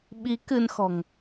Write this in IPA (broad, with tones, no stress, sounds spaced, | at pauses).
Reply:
ɓ i˨˦ k ɨ˧ n x ɔ̤˨˩ ŋ